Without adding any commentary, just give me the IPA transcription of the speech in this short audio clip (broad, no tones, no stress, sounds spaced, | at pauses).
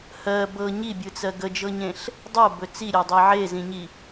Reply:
h ɜ b ɤ ɲ i bʲ ɯ t͡s ɜ ɡ ə d͡ʒ ɤ ɲ ẽ ɬ | dˤ ɤ b ɵ t͡s i ɾʲ ɜ dˤ i ʕ e z ĩ ɲ i